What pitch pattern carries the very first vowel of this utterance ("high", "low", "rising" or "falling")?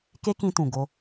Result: high